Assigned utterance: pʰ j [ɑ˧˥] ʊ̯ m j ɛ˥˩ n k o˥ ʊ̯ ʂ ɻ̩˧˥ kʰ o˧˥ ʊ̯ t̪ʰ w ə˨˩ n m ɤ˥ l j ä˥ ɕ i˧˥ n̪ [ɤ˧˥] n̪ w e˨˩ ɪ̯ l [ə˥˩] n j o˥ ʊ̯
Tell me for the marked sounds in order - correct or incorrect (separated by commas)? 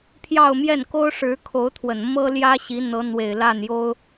incorrect, correct, incorrect